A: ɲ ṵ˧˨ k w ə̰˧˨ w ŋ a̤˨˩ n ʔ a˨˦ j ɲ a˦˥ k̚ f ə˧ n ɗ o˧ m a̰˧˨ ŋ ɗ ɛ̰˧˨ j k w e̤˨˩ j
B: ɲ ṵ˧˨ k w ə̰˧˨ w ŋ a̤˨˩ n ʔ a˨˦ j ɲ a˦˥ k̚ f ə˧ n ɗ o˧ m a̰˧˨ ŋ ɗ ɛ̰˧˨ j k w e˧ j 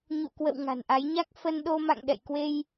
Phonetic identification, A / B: B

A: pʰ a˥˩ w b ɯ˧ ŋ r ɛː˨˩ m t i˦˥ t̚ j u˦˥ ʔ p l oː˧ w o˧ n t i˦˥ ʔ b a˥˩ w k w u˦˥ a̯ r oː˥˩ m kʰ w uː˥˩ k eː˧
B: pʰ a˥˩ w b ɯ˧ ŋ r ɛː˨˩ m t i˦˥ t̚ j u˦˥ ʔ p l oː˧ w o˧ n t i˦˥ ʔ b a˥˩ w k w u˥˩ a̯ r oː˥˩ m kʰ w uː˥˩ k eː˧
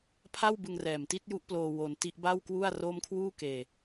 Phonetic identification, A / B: B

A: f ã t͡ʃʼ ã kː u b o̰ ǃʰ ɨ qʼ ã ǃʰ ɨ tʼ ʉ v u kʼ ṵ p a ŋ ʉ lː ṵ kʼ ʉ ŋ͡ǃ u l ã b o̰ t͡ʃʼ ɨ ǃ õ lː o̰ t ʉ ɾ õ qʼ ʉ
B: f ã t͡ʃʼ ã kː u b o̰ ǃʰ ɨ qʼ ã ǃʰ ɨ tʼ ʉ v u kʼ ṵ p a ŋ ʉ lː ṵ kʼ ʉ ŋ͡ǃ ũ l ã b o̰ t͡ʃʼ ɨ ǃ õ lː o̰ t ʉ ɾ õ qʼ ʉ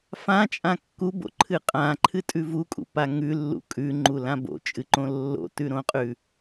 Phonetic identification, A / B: A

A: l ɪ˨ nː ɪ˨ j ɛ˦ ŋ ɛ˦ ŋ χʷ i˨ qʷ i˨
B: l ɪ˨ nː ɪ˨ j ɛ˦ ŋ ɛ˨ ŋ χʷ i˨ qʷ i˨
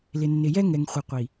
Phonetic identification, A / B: B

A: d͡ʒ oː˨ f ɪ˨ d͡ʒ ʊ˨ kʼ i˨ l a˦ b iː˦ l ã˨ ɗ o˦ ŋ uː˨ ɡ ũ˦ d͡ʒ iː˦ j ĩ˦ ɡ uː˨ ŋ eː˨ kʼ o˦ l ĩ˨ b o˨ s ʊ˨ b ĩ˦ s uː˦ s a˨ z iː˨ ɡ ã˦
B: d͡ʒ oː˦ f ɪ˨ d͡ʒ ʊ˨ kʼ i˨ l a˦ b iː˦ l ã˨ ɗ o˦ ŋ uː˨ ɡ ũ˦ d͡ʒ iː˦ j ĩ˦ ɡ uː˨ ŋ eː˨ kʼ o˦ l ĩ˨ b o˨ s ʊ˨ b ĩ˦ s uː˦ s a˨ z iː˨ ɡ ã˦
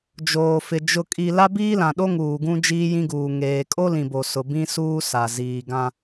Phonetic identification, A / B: A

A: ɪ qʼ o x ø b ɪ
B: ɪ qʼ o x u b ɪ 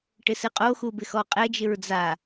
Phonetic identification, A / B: B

